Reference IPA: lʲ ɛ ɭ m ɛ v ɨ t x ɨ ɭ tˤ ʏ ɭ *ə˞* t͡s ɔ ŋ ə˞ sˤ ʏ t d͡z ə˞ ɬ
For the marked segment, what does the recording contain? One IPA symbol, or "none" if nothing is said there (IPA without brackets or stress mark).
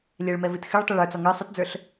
ə˞